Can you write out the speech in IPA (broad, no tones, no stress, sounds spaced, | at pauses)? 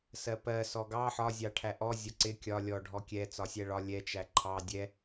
s ɜ p ɜ s ɔ ɡ ɑ ħ ɒ zʲ ɑ ʈʰ æ ʔ ɔ zʲ ɒ ǀ ɪ kʲ ɒ lʲ ɔ ɖʱ ɔ kʲ ɛ t͡s ɒ sʲ æ ɭ ɒ lʲ ɛ t͡ʃ æ ǃʰ ɑ dʲ ɛ